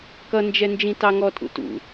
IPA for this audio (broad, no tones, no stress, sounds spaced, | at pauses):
k ʌ n d͡ʒ ɛ n d͡ʒ ĩ t ɑ ŋ ɔ tʼ ṵ t ṵ